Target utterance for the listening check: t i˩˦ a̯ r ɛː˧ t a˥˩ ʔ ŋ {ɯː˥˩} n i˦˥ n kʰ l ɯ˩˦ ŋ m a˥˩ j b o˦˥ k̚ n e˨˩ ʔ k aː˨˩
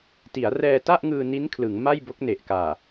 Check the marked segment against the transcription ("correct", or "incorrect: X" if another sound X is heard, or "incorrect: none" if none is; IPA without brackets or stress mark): incorrect: ɯː˧